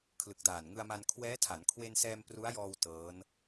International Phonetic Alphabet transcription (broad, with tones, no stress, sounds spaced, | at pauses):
kʰ l ɯ˨˩ k̚ d aː˨˩ n ŋ ɯ˧ a̯ m a˧ n kʰ w ɛː˦˥ tʰ a˩˦ n kʰ w e˧ n s ɛː˧ m p r u˦˥ a̯ j ɔː˧ w t ɤː˦˥ n